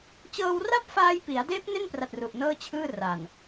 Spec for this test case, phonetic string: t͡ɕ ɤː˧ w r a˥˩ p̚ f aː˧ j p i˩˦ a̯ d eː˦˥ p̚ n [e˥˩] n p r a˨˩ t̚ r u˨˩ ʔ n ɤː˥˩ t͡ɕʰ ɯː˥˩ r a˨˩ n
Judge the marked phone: correct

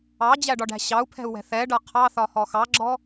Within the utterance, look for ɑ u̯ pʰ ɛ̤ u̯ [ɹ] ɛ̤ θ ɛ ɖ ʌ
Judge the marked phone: incorrect: w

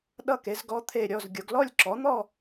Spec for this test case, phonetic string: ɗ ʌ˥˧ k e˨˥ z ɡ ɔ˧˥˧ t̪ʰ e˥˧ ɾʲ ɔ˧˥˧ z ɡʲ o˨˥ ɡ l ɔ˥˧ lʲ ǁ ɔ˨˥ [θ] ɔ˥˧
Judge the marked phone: incorrect: n̪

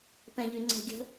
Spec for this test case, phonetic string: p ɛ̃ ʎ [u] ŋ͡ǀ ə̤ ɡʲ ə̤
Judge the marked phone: incorrect: y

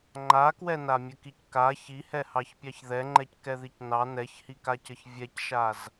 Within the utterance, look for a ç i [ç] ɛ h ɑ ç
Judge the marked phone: incorrect: h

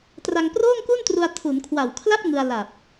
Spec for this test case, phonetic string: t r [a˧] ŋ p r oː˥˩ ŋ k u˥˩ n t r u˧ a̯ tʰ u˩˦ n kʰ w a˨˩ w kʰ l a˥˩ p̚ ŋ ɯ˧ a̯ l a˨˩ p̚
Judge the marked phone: correct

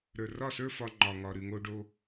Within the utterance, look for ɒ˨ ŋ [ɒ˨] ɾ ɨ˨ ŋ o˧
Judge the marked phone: correct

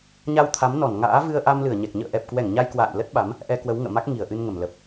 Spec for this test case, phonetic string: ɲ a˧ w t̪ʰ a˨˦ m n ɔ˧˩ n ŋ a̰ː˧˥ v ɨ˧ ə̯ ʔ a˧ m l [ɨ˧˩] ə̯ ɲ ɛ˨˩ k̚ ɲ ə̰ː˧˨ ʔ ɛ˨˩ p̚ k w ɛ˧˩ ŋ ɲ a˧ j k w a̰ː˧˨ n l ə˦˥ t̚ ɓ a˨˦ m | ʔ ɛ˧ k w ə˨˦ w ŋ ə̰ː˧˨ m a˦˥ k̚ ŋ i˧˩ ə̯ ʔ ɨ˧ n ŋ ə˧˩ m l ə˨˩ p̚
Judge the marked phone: correct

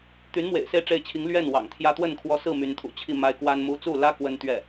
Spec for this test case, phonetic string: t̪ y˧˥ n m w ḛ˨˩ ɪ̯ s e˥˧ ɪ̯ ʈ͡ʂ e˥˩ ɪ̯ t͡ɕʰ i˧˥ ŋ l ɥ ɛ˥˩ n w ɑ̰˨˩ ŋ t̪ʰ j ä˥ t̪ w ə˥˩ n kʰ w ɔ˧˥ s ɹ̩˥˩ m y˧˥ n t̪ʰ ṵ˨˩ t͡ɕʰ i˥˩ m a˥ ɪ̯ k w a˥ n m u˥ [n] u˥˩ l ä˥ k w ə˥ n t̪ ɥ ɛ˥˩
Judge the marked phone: incorrect: t͡s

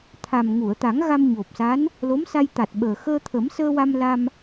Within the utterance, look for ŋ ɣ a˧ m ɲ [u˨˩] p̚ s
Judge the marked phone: incorrect: o˨˩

